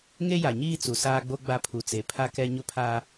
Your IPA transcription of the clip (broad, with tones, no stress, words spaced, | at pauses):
ŋe˦ja˨ɲiː˦ t͡su˨saː˦ɡ͡bo˦ ɡ͡ba˦pʰu˨t͡se˨ pʰa˦kɛ˦ ɲʊ˦pʰaː˦